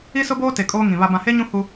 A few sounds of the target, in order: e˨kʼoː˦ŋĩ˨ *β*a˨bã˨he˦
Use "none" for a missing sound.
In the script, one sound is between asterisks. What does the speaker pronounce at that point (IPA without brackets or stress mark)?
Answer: β